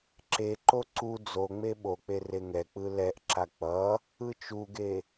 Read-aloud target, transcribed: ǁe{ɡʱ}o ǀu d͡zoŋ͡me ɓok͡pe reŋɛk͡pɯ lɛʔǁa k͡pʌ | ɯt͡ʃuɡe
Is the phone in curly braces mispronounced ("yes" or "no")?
yes